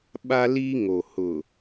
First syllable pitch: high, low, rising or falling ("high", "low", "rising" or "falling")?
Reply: high